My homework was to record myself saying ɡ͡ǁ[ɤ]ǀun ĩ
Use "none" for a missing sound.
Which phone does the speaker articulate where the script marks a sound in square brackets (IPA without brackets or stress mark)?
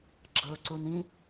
ɤ